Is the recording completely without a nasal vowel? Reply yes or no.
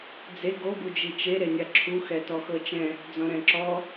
no